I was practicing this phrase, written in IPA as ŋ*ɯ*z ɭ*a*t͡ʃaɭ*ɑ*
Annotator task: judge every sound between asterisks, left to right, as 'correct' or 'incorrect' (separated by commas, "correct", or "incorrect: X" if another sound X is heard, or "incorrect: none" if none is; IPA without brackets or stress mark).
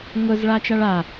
incorrect: ʊ, correct, incorrect: a